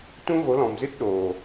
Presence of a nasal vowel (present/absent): present